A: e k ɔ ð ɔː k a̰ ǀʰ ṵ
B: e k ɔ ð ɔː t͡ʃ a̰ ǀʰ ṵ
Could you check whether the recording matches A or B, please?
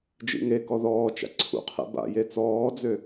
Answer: B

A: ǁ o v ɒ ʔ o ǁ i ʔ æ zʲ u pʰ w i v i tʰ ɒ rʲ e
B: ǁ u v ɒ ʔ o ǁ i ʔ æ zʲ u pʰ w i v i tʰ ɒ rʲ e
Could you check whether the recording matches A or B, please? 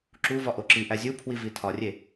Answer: B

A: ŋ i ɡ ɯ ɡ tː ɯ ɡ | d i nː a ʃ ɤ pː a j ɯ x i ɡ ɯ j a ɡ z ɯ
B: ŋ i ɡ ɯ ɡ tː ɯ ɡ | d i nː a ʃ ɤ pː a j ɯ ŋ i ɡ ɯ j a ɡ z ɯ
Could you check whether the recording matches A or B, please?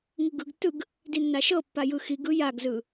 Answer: A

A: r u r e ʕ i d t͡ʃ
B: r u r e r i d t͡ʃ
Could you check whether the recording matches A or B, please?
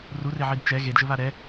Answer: A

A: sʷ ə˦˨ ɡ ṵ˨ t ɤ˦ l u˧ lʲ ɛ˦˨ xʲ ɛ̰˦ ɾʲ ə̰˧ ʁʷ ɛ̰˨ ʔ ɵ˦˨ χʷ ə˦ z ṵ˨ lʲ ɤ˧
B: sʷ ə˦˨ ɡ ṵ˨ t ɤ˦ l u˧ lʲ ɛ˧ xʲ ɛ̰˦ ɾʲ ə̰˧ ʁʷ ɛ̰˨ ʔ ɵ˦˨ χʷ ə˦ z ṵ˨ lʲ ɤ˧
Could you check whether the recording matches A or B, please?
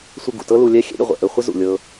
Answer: A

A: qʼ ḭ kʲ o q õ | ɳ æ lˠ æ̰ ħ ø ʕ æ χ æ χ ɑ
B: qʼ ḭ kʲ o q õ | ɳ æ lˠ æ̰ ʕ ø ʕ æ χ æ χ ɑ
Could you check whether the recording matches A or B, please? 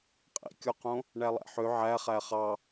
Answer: A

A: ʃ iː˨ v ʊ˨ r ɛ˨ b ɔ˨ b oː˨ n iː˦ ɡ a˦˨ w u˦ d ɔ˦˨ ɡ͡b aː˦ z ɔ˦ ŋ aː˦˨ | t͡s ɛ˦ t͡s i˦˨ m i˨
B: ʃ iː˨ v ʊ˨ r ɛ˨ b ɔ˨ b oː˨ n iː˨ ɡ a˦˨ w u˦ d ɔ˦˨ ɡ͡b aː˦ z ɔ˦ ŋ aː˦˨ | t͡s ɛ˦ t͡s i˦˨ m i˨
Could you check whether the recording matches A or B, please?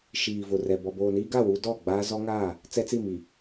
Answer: A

